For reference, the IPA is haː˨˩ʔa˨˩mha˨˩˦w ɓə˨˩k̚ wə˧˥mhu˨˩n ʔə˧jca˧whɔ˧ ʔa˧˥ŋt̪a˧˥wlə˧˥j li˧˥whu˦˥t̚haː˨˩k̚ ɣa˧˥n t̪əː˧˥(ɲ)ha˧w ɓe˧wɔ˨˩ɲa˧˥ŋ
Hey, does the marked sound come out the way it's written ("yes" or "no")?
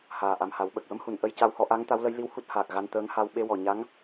no